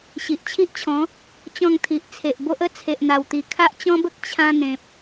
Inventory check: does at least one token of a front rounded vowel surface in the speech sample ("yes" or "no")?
no